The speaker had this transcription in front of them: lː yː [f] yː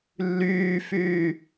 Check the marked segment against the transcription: correct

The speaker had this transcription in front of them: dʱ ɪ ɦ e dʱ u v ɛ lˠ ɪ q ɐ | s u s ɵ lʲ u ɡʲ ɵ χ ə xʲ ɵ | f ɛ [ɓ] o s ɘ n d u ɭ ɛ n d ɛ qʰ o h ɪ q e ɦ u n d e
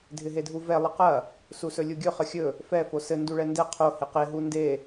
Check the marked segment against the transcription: incorrect: f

